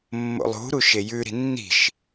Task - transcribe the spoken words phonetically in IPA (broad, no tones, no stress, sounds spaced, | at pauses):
mː o̰ lˠ ṳ ɾ u ʃ e j ʉ ɾ i̤ nː i̤ ʃ